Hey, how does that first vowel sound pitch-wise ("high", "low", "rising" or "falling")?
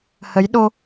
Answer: rising